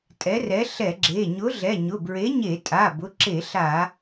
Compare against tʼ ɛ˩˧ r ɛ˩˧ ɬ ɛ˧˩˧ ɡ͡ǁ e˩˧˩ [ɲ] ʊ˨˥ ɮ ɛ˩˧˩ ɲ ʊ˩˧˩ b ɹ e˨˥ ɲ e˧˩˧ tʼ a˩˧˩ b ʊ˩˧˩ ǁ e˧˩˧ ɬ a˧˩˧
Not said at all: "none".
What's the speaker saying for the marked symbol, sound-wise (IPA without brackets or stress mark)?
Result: ɲ